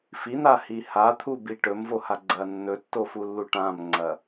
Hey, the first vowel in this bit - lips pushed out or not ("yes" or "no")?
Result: no